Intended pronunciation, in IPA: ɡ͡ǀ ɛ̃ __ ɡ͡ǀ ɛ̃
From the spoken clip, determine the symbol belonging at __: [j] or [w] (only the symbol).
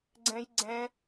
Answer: j